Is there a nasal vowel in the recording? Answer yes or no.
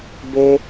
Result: no